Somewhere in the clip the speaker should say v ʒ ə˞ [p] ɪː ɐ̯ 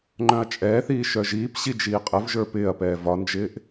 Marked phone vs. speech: correct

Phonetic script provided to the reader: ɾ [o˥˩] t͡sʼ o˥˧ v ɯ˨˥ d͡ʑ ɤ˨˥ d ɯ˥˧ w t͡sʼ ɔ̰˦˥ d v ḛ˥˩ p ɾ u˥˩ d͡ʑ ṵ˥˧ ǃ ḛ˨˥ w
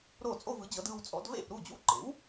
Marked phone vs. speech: correct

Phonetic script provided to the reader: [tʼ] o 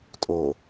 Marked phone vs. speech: correct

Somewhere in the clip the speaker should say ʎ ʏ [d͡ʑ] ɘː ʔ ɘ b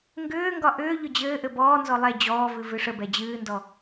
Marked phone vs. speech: correct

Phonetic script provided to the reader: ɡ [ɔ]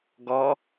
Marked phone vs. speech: correct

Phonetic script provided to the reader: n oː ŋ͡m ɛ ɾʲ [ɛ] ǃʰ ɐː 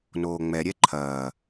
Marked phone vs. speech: correct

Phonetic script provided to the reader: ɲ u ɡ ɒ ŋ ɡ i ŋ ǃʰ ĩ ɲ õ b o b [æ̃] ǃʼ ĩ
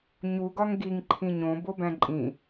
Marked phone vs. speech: correct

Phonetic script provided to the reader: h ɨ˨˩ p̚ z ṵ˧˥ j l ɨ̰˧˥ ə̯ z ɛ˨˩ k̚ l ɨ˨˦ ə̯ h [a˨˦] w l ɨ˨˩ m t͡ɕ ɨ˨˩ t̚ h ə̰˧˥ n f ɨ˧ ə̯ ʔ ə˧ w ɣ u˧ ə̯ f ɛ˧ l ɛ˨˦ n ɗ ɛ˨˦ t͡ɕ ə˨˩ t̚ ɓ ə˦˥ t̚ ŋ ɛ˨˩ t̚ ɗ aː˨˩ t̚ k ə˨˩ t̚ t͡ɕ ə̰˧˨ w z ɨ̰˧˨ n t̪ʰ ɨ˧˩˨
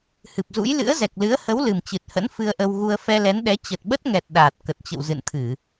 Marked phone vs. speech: incorrect: ə˨˦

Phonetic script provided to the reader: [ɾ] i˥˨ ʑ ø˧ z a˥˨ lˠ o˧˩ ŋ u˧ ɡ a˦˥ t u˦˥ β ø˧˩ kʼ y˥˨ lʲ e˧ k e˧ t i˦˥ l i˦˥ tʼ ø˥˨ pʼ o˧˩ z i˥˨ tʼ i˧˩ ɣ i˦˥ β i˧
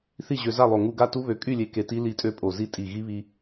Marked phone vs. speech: incorrect: θ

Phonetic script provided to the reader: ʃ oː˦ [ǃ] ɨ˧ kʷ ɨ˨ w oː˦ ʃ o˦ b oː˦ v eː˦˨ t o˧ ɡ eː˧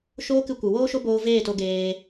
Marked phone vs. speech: incorrect: k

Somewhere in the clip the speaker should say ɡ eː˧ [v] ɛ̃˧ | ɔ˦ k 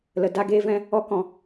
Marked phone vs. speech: correct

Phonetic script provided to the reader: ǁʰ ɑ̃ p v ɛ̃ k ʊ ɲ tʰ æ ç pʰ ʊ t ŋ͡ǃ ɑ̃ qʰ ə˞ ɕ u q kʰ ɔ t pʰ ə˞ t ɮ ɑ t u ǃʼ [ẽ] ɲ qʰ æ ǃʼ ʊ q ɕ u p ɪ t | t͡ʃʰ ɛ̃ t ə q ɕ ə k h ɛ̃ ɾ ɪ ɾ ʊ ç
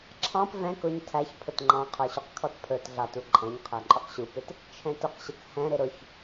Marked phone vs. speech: incorrect: ɛ̃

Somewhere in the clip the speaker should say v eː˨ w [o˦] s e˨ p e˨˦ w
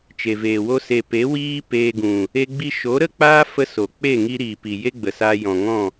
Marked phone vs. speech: correct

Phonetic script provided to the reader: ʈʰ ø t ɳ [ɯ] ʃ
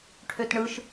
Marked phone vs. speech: correct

